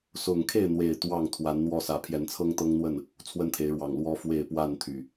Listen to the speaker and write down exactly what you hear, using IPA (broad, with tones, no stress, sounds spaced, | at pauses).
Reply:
s ʊ˨˩ ŋ kʰ e˥˨ ɪ̯ n̪ w e˨˩ ɪ̯ t̪ w ɑ˥˨ ŋ t̪ʰ w a˨˦ n n̪ w ɔ˥˨ s ä˨˦ pʰ j ɛ˨˦ n t͡sʰ ɤ˦ ŋ t̪ ɤ˦ ŋ n̪ w ə˥˨ n | t͡sʰ w ə˦ n t̪ʰ e˨˦ ɪ̯ ɻ w ɑ˨˩ ŋ l w ɔ˦ f w e˥˨ ɪ̯ p w a˥˨ n t̪ʰ y˨˩